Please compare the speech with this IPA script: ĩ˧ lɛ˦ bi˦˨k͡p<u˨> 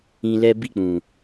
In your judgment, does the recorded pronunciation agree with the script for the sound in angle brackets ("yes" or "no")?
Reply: no